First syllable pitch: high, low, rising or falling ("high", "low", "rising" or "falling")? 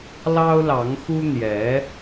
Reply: high